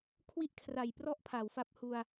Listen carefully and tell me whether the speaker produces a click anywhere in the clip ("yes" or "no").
no